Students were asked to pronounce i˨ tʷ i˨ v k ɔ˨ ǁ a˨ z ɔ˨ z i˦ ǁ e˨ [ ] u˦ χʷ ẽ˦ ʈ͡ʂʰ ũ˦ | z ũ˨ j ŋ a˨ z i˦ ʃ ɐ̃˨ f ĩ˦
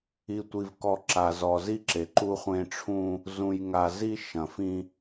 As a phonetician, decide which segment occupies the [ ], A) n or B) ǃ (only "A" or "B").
B